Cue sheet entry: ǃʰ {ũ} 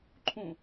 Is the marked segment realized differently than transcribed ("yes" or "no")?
no